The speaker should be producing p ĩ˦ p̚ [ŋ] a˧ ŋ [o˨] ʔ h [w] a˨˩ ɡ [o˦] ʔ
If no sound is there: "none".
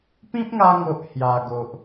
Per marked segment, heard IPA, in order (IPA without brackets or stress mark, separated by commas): ŋ, o˨, j, o˨